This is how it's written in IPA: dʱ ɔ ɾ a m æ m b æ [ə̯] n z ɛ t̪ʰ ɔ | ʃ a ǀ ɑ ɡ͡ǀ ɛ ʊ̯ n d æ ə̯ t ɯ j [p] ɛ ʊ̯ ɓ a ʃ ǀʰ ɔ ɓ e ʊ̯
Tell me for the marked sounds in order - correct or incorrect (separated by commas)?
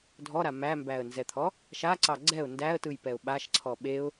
correct, correct